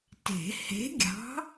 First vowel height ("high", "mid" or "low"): mid